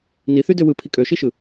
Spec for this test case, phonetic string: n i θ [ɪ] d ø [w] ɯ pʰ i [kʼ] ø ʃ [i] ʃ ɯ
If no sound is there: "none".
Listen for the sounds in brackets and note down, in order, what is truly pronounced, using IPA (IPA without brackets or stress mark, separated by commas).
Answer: y, w, kʼ, i